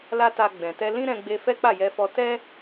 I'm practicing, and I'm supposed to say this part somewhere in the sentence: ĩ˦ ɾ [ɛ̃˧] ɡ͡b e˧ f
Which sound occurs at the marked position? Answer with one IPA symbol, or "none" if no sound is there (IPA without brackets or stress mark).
ɛ̃˧